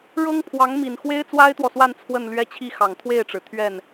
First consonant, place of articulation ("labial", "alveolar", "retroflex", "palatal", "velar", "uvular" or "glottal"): retroflex